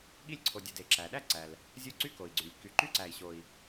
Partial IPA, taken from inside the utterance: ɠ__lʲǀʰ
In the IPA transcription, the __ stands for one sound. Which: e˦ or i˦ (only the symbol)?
i˦